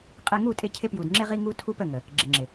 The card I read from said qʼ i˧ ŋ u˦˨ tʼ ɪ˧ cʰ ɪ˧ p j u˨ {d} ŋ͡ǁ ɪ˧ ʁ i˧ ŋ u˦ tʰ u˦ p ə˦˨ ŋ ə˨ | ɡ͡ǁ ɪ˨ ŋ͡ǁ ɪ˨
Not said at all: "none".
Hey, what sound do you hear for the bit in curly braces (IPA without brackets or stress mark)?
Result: d